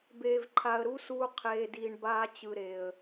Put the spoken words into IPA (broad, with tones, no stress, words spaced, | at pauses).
beː˨vǃʰa˨ə̯ɾu˦suː˧ qʰeː˨diː˨ɳbaː˧t͡ɕɯ˨ ɾe˨ə̯